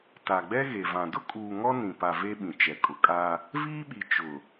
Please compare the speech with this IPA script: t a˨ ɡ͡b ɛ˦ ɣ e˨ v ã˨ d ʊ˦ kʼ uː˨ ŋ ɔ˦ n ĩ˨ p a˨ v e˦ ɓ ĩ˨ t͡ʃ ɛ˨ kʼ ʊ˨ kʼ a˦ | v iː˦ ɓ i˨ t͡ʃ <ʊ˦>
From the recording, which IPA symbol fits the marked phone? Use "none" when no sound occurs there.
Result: ʊ˨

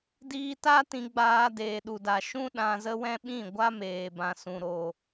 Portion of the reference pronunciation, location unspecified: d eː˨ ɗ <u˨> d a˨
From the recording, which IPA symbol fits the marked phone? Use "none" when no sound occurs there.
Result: u˨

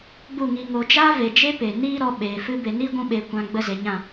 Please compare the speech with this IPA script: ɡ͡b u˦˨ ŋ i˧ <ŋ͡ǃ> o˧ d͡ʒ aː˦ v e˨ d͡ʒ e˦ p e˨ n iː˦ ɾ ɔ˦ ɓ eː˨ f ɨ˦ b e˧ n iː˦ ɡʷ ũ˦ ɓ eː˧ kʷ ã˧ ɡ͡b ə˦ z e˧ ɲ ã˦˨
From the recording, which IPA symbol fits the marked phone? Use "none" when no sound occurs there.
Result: ŋ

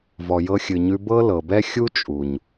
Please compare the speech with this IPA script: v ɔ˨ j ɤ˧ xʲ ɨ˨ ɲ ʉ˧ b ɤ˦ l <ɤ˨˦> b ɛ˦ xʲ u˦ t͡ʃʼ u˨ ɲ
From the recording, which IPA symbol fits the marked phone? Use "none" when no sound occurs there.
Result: ɤ˨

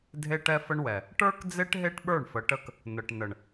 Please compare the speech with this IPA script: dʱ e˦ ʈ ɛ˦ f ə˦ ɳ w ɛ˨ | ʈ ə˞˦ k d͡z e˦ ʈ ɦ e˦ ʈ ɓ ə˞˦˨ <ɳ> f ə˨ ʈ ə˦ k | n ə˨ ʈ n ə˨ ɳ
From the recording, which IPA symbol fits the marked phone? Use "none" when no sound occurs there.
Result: ɳ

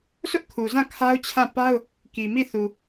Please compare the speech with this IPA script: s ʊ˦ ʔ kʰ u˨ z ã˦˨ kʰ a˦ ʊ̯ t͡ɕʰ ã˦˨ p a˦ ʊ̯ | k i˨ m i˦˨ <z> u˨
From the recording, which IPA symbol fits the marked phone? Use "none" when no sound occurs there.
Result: θ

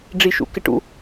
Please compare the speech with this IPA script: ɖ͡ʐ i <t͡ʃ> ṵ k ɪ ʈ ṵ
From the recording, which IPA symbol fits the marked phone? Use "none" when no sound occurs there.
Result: ʃ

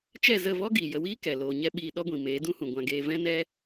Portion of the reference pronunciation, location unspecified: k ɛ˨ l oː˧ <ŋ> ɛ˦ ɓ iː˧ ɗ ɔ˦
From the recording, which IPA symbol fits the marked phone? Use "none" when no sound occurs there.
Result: ɲ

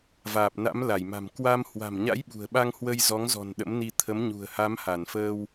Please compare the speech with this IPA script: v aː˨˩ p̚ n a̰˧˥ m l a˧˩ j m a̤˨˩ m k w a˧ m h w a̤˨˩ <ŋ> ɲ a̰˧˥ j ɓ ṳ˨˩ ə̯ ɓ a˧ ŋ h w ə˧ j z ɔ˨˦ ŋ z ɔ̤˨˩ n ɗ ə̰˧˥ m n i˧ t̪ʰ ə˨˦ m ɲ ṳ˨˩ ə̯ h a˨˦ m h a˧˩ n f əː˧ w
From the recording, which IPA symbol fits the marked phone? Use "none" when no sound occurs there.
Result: m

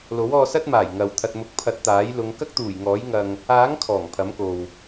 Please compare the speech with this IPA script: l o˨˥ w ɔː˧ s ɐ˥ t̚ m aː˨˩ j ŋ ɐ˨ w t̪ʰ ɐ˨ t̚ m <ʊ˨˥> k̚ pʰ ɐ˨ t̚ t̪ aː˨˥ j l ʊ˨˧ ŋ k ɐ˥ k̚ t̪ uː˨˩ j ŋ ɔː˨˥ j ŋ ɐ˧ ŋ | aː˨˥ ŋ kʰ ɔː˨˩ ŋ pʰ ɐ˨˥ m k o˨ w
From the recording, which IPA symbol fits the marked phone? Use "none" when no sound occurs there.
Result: ʊ˨˥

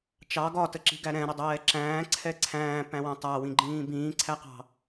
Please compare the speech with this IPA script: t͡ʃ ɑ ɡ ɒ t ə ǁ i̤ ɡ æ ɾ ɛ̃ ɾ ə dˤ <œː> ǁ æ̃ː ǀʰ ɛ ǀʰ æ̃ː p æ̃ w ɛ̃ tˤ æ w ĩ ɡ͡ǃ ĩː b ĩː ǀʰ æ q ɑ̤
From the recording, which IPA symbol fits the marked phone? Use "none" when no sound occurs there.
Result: ɛː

